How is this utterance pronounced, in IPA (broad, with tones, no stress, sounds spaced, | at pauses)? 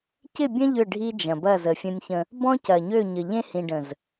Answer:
c ɪ˦˨ bʲ ɐ̃˦ ʎ ʏ˦˨ ɖʱ i˦ d͡ʒ ɐ̃˨ b ɐ˦˨ z ə˨ fʲ ə̃˦ nʲ ç ə̃˦ | b ɔ̃˦ c ɐ˨ ɲ ø˦˨ ɲ ə˨ ʎ ẽ˦ h ĩ˨ ɖ ə̃˨ z